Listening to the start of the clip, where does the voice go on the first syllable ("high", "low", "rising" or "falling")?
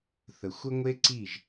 low